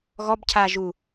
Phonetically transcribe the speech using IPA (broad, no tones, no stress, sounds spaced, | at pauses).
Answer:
ɣ ɔ b cʰ aː ʒ u